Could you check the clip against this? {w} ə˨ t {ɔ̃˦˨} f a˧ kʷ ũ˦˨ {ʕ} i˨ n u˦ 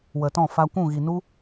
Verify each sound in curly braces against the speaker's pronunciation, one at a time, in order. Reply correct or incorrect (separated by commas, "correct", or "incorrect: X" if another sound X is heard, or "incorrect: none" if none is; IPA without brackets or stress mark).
correct, correct, incorrect: ɣ